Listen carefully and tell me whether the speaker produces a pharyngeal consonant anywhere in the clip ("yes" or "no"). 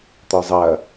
no